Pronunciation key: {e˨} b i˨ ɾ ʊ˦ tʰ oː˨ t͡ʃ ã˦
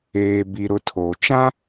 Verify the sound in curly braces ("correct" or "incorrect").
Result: incorrect